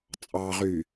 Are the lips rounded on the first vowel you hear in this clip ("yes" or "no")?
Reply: no